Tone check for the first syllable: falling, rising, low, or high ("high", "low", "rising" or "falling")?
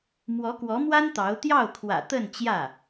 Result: rising